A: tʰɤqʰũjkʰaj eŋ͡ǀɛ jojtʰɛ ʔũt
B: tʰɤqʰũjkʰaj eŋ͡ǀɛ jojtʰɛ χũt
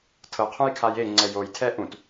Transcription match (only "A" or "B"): A